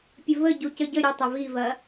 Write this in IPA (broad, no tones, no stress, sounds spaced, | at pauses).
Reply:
pʲ ə v ə ɟ u c ə ɟ ə ɾʲ ə tˤ ɐ v i v ɐ